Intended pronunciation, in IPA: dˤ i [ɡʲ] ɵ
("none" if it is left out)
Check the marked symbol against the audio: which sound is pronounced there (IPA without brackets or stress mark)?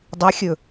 xʲ